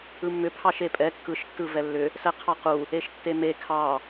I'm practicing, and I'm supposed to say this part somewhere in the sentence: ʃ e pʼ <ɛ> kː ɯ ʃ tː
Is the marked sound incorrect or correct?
correct